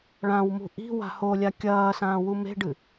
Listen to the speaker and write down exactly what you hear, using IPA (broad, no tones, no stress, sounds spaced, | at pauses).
ɭ ã w m ṳ ʔ i̤ w a̤ h o lʲ a kʲ ɐː s ãː w u m e̤ ɖ ɨ